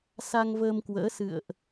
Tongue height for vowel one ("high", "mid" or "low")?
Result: low